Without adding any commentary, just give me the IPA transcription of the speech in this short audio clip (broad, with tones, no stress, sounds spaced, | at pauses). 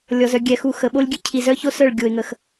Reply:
lʲ ɔ˧ z œ˧ ɡʲ ɛ˨ x u˧ x ə˨ ɓ o˦ lʲ ɡʲ ø˦ cʰ i˨ z œ˦ ç o˦ s œ˦˨ ɭ ɡʲ o˨ ɪ̯ ŋ ə˨ x